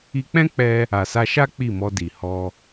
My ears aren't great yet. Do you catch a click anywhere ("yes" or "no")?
no